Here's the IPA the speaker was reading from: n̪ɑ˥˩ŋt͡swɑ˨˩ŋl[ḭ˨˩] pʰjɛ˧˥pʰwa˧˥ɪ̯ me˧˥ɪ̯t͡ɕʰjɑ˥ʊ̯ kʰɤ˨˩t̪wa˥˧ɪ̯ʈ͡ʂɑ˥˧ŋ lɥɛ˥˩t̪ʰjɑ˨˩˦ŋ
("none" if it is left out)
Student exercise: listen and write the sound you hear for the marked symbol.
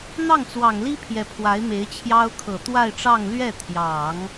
i˥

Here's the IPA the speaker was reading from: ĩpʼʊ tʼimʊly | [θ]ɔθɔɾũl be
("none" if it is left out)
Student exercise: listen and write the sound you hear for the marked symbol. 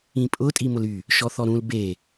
ʃ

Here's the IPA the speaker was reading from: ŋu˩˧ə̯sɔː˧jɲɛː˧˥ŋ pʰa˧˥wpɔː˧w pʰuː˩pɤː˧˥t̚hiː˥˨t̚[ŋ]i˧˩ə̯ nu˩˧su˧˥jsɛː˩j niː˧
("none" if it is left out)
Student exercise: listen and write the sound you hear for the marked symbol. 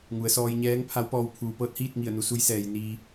ŋ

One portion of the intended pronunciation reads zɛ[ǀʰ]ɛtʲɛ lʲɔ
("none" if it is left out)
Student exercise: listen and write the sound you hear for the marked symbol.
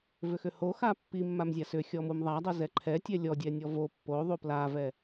ǃʰ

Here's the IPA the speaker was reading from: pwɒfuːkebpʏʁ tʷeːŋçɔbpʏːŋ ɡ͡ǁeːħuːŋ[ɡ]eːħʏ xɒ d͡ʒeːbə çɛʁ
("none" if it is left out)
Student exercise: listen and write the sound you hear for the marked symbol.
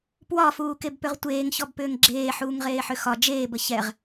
ʁ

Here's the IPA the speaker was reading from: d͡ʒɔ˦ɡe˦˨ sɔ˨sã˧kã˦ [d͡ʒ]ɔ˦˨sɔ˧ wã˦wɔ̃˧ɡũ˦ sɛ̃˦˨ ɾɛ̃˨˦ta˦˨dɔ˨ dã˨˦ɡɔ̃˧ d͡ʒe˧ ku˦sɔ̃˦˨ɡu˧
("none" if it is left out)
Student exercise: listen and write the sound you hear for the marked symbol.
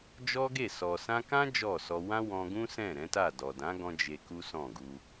d͡ʒ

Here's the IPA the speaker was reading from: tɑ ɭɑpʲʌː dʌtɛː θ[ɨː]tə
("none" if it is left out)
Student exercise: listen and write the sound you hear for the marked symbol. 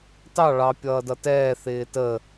ɪː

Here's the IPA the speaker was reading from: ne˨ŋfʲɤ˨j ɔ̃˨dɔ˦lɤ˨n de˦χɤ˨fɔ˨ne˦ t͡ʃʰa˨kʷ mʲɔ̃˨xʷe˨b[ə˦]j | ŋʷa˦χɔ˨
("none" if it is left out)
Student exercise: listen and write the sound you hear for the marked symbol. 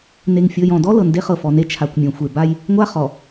a˦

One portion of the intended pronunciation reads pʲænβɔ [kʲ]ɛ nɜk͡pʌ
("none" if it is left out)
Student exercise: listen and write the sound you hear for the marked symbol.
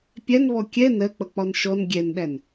kʲ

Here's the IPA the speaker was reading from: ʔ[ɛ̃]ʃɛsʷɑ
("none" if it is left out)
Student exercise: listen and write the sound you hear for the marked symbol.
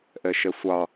ɛ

